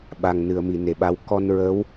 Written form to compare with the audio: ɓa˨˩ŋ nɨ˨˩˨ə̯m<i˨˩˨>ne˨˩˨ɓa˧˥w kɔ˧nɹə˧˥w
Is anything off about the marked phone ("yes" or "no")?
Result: no